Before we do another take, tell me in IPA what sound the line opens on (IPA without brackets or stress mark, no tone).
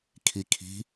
kʰ